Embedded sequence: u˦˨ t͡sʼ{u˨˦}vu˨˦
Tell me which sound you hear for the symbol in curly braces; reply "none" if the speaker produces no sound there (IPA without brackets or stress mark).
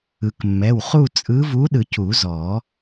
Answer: ɯ˨˦